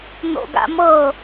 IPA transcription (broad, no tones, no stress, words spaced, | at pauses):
n̪o̰ɡa̰mɤ